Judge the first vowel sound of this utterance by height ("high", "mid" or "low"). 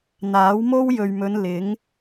low